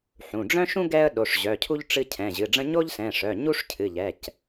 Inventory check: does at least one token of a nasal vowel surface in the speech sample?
yes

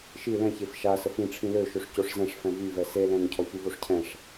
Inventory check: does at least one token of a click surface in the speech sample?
no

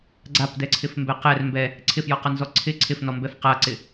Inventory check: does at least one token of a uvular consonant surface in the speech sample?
yes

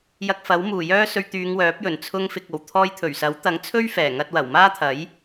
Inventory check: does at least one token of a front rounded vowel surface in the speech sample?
yes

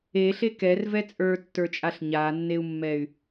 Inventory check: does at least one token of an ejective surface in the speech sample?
yes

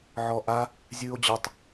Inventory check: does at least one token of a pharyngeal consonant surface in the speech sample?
yes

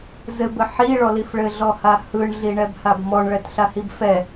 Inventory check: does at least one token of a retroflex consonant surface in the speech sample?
yes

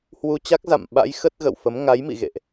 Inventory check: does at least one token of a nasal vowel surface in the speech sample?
no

